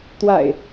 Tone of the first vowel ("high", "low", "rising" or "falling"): low